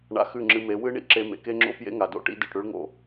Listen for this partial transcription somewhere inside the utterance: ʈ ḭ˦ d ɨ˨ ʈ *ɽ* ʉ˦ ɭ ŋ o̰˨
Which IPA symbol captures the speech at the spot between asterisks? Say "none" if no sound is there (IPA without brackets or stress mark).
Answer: ɽ